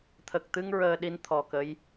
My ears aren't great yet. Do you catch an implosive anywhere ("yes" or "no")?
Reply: yes